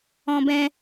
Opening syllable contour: high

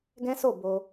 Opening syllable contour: high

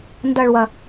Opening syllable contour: low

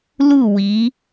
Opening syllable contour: falling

